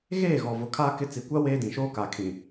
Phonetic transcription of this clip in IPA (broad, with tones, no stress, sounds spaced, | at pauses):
ɣ eː˦˨ ɣ ɔ˨ v ʊ˨ kʰ a˦ k ɪ˦ t͡s i˨ kʷ a˦ w eː˦ d ĩ˨ ʃ oː˦ k a˨ kʰ ĩ˨